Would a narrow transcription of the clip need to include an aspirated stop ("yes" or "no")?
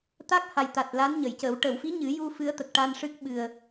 no